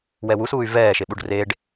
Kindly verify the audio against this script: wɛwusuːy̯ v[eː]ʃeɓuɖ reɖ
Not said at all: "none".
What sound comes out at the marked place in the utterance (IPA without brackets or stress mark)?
ɛː